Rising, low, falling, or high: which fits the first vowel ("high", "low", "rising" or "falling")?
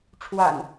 low